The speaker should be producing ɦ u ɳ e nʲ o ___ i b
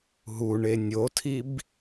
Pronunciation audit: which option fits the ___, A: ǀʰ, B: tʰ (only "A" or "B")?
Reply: B